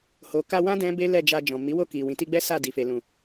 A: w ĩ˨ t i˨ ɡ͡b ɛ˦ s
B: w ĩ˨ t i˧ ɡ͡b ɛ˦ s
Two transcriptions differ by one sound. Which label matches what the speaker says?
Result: B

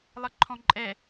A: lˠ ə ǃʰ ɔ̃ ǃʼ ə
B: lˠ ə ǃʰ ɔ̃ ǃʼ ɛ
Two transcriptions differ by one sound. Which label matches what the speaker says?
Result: B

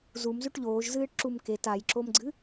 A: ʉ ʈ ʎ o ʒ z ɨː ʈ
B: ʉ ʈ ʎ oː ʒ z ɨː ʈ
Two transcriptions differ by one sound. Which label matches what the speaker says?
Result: B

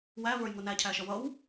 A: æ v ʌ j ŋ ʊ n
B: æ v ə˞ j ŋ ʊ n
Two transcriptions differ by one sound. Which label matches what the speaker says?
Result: B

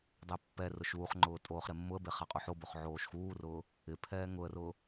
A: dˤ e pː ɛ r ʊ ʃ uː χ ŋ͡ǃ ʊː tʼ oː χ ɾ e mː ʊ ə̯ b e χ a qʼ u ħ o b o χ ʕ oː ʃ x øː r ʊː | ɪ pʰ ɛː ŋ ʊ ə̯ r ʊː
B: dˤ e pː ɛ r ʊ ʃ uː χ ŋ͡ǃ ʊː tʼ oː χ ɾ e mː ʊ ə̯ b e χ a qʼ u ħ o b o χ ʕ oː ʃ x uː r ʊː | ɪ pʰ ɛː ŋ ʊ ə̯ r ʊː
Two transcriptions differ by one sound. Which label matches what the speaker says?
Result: B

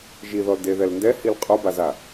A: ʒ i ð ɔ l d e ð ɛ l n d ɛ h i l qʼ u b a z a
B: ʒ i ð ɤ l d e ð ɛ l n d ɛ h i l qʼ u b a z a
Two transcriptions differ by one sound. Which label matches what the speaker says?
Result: A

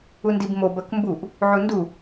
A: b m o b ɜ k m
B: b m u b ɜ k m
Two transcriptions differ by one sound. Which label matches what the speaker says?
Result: A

